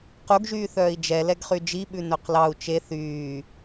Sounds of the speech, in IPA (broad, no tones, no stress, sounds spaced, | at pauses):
q u ɡ ʒ yː θ œː i̯ d͡ʒ ɛ l ɛ ɡ χ y d͡ʒ i ɓ ʉ n œ q l ɑ u̯ t͡ʃ e θ yː